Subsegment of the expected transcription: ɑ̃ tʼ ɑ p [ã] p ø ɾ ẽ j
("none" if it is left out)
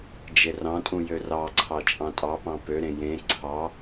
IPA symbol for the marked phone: ɑ̃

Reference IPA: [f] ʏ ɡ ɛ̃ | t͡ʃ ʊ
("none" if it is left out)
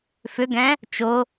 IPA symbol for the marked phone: f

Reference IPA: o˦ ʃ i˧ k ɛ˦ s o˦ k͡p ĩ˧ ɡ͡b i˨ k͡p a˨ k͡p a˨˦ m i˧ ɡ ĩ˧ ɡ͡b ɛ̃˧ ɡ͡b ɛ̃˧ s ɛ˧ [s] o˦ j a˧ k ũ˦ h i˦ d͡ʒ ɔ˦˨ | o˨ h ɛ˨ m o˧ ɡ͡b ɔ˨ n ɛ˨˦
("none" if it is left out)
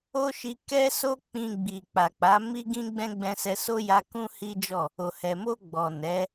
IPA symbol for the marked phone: s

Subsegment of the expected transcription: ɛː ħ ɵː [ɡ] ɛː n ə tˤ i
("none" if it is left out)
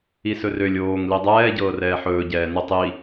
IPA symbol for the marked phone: ɟ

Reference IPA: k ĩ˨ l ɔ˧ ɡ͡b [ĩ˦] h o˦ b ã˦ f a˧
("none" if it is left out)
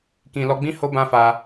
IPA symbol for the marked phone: ĩ˦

